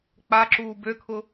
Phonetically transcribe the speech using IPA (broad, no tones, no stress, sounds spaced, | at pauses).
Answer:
k͡p a ǁ uː b ø kʰ ʊ